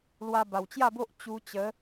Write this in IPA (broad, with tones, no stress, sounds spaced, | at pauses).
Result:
l w a˧ b a˨˩ w t͡ɕ j a˥˧ b o˦ ʔ t͡ɕ u˧ t͡ɕ ə˨˦